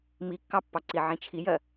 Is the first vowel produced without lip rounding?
yes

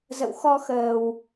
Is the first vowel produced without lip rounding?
yes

